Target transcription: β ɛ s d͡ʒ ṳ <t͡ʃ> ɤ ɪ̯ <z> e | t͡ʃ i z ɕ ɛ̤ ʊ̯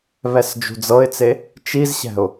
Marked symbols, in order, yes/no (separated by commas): no, no